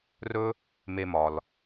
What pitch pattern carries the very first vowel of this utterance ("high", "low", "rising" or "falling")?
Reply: high